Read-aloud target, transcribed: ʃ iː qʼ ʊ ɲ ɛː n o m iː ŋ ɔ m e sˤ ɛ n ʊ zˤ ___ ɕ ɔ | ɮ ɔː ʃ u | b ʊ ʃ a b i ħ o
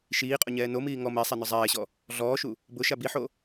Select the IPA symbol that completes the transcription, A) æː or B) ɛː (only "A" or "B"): B